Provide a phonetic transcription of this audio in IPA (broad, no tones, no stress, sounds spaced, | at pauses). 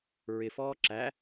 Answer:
ɹ ɪ f ɔː ǁ æ